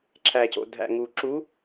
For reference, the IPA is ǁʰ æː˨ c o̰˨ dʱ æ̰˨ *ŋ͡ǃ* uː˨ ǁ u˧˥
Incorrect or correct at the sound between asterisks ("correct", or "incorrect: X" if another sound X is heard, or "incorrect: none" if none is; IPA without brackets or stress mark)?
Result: incorrect: ŋ